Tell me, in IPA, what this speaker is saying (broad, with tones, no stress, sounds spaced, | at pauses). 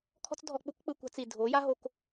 kʰ ɔ̤˦ t͡s dʱ ɔ˧ k͡p u˦ k k͡p ɯ˧ kʷ a̤˧ t͡s i˨ dʱ o˨˦ j a˦ ɦ o˧ k